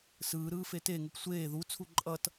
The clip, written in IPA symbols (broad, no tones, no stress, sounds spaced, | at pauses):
s ɯː ɾ ɯː f e t e ŋ u p sʷ eː ð u t͡sʰ u ǃʼ ʌ t